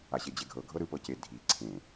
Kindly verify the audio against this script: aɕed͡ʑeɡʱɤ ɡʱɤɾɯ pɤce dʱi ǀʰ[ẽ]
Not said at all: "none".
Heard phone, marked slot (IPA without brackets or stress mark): ẽ